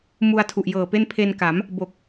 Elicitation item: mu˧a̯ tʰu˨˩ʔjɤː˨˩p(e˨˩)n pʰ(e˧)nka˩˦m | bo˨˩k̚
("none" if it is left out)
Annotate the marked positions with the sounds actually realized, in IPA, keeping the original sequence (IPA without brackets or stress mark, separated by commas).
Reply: e˥˩, e˧